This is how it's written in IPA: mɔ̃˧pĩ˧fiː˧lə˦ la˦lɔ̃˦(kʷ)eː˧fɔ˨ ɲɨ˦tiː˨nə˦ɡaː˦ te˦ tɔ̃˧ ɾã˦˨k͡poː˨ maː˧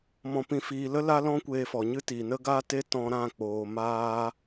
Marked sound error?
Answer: no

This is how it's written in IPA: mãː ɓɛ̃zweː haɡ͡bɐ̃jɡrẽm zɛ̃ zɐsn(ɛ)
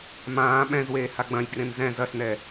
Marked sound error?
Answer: no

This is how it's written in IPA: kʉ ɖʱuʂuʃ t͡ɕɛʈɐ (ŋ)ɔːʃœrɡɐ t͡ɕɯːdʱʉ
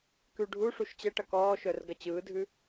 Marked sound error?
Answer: yes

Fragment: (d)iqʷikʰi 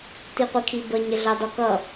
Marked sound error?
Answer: yes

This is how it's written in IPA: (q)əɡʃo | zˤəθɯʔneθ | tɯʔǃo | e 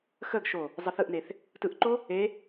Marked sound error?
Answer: yes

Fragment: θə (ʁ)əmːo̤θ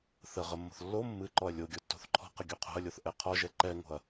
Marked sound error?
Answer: no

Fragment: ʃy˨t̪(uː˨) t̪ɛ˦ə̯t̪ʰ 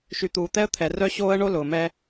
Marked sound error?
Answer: no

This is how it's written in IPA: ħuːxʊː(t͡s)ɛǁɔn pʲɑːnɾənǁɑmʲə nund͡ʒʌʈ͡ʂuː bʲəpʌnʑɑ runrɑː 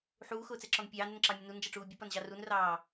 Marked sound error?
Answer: no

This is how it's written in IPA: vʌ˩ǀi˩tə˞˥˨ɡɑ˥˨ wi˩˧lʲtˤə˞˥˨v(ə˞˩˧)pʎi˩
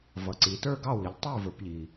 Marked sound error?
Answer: no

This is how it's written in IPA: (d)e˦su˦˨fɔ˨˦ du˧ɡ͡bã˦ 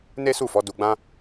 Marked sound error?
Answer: yes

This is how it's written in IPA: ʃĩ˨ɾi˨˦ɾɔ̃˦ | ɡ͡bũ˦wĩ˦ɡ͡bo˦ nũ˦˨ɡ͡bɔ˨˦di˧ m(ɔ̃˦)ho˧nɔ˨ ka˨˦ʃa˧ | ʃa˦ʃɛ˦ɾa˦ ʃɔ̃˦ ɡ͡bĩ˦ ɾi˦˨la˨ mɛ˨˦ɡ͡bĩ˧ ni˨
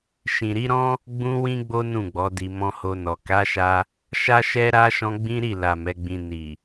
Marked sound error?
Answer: yes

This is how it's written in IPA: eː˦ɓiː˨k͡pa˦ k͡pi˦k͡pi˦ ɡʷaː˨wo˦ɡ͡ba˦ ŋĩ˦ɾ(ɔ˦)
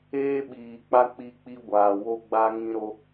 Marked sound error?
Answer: yes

